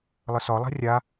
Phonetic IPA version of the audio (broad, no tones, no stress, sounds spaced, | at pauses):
lˠ ə s ɒ lˠ a̤ rʲ a